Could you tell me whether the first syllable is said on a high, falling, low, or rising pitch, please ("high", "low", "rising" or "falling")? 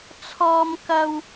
high